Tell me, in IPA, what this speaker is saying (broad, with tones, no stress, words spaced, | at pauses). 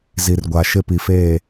zi˨rɡʷa˨ ʃɪ˦ pi˨feː˦˨